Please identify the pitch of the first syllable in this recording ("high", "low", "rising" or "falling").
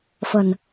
low